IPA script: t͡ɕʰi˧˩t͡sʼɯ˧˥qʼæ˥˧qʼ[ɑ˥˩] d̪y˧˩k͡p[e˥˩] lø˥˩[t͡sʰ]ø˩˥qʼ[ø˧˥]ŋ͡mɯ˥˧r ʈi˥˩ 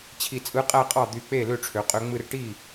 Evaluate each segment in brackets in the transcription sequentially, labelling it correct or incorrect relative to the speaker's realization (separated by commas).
correct, correct, incorrect, correct